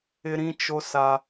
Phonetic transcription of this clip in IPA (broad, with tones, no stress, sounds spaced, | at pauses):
ɪ˦ ɾ ĩ˦ t͡ʃ o˦ s a˦